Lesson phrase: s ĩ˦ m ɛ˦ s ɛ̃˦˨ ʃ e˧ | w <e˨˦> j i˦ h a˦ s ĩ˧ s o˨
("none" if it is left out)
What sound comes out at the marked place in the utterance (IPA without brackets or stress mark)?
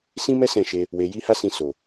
e˧